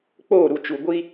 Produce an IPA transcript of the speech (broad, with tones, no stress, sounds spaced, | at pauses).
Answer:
k͡p oː˦˨ ɾ u˨ t͡ʃ u˨ ɡʷ i˦